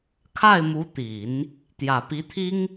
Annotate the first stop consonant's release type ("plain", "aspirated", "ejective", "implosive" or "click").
aspirated